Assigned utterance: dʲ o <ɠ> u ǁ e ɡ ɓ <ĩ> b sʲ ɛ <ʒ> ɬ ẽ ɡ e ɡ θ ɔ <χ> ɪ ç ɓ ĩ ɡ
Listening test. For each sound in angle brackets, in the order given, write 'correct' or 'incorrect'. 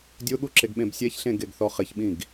correct, incorrect: ẽ, incorrect: ç, correct

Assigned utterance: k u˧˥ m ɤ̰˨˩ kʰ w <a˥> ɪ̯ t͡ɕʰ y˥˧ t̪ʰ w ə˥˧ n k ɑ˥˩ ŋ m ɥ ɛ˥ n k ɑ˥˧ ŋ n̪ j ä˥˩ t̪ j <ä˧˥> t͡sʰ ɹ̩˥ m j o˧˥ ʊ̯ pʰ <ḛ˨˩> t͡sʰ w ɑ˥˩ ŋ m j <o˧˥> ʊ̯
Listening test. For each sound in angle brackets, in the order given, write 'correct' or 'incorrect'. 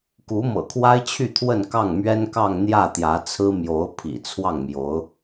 correct, correct, incorrect: ḭ˨˩, correct

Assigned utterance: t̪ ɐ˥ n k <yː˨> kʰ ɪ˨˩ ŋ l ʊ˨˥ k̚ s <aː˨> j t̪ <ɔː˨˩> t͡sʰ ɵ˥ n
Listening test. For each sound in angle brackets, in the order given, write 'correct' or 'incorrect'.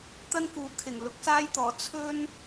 incorrect: uː˨, incorrect: aː˥, correct

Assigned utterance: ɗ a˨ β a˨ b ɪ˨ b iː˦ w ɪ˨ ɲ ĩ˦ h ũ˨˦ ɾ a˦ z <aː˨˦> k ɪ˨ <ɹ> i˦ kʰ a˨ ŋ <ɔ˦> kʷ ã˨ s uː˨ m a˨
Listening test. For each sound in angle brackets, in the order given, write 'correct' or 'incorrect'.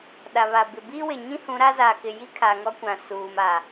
incorrect: aː˨, incorrect: j, correct

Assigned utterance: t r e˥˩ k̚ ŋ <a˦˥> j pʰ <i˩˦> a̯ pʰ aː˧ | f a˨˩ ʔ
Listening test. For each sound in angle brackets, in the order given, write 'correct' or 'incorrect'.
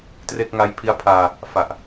correct, incorrect: i˦˥

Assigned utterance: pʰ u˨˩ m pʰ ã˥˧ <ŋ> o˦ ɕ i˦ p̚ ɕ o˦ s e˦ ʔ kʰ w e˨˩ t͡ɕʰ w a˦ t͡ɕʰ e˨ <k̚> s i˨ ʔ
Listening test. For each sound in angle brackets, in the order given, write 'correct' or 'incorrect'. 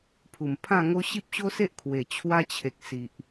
correct, correct

